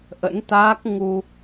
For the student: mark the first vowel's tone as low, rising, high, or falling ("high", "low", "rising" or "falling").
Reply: rising